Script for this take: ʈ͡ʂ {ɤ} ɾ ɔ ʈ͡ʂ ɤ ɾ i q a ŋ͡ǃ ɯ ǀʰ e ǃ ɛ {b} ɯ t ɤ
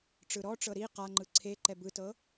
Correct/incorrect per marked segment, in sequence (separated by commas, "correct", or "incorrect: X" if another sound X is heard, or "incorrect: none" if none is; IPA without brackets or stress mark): incorrect: ɯ, correct